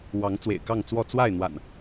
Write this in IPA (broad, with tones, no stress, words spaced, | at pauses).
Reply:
wɑ˨˦ŋ t͡swḛ˨˩ɪ̯kɑ˥˨ŋ t͡swɔ˥˨ t͡swa˥˨ɪ̯n̪wa̰˨˩n